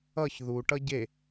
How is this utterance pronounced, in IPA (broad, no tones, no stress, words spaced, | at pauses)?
ʌç ðuʈʌ ɟe